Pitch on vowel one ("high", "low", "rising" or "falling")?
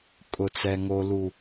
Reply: low